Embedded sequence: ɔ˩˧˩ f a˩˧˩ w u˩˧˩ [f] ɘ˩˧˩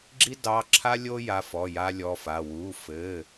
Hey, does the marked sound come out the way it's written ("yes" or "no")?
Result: yes